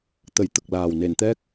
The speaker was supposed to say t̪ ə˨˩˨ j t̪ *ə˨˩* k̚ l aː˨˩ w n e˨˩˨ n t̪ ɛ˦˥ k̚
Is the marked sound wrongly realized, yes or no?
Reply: no